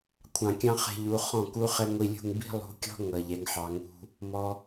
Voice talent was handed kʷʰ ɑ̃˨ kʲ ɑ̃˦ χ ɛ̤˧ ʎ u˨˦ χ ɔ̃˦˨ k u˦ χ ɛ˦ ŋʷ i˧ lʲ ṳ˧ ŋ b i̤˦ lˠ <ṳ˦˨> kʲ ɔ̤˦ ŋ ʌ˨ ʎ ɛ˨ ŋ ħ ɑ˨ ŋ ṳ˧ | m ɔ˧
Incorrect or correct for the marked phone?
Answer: incorrect: ṳ˨˦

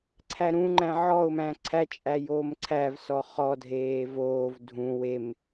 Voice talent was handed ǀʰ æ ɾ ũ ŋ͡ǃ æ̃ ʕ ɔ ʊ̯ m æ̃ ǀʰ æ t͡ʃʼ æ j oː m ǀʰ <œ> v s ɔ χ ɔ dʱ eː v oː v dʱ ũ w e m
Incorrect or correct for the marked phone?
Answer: incorrect: æ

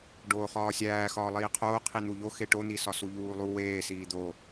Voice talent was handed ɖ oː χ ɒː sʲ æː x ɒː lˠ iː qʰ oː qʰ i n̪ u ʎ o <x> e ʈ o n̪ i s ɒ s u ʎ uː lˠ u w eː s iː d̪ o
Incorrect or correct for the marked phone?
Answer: correct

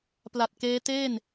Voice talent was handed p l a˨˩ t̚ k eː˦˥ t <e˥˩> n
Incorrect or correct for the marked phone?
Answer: incorrect: eː˥˩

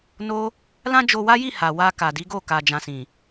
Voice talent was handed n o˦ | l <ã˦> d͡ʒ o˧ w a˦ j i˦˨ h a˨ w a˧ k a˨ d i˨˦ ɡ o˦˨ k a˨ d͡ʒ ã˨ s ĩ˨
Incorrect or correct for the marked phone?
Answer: correct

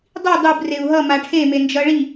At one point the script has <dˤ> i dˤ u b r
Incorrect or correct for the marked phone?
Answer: correct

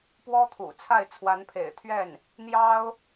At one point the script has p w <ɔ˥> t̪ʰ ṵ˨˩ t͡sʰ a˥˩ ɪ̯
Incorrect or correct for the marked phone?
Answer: correct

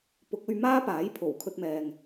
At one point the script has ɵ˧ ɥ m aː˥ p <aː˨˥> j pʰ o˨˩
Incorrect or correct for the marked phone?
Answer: correct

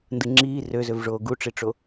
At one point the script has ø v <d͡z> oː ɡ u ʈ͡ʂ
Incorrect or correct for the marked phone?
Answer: incorrect: ʐ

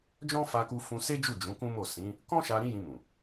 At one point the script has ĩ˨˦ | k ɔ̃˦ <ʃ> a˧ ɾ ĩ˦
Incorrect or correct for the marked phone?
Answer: correct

